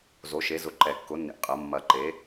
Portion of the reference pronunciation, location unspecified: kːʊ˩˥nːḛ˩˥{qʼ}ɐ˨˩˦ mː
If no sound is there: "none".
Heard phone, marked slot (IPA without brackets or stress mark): qʼ